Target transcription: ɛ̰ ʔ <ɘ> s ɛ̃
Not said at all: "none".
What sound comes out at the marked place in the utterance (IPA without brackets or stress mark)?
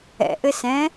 ɘ